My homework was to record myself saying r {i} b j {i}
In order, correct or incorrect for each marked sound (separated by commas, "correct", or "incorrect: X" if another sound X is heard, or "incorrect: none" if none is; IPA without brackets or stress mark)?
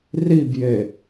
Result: correct, incorrect: e